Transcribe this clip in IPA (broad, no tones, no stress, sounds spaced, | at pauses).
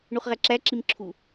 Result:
ɳ u χ ʁ æ ǁ æ ǁ i m ǁʰ u